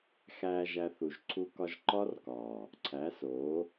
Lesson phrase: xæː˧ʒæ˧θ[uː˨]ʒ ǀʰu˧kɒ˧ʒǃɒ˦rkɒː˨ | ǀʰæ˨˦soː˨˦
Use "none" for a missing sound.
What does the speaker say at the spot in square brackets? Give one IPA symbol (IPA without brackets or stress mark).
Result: u˨